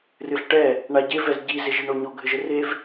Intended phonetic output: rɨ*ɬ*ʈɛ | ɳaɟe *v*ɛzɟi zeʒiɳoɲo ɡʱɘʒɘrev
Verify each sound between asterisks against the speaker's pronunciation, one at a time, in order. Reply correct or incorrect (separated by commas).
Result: correct, correct